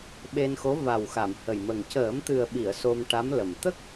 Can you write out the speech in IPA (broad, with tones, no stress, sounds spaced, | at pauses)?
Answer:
ɓ e˧ n x o˧˥ v a˨˩ w x a˨˩˨ m h ə˨˩ j m ə˨˩ ŋ c əː˨˩˦ m t̪ ɨ˨˩ ə̯ ɓ i˨˩˨ ə̯ s o˧ m ʈ a˧˥ m l ə˨˩ m t̪ ə˦˥ k̚